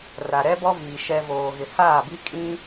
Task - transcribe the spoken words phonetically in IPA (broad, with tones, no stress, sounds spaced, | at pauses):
r a˨ ɾ ɛ˦ b ɔ˦ v iː˨ ʃ ɛ˨ v oː˨ ɣ ɪ˨ h aː˦˨ b i˦ kʼ ĩ˦